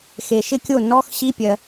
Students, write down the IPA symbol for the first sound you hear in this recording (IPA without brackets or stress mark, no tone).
x